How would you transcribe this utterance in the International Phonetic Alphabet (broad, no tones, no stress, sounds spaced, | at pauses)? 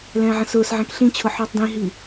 l ɛ̃ː ʕ ə̃ s ʊː s ʕ ɛ̃ k ɬ ĩ t͡ɕʰ ʊ ħ ɔ tˤ d ĩ ɦ i